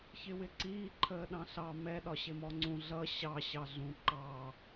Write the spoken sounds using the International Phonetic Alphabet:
çɪwɪǀiː ǃʰəːɗɑ̃ɬɑ mɛ ɗɒɕɪmɔŋ͡ǀũ ɮʌ ɕɑ ɕɑɮũ ǃɑ

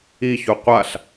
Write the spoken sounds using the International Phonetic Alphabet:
içu qʷaɬ

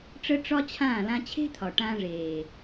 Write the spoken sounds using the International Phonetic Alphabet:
ʈ͡ʂə˦ ʈ͡ʂɒ˦t͡ɕʰãː˦˨ lã˧t͡ɕʰe̤˦t̪ʰɒ˨ ʈãː˧ʐeː˨

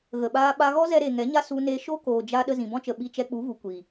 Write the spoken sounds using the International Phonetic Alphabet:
ɣə˨ɓaː˧ ɓa˧ɣɔ˦zɛ˧ ɾe˨ ŋɛ˨˦ɲa˦ su˧ne˧ ʃo˦koː˨d͡ʒa˧ ɗə˧zĩ˨bɔ̃˦t͡ʃə˨ ɓi˧t͡ʃɛ˧k͡pu˨˦vu˨ kʷi˨

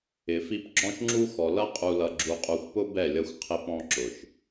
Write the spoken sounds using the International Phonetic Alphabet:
ɪ˨fi˦p ɡ͡ǁɔ̃˦ʃŋ͡ǁu˦xɔ˨ lʌ˦qʼu˨lʌ˨ ɡ͡ǁu˨qʼu˨xʷpʊ˦ bɛ˦˨lʲʌ˦xʷ qʰɪ˦pɔ̃˦ǁʊ˨ʃ

